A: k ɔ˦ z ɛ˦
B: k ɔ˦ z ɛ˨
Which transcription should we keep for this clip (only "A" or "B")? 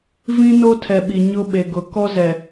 B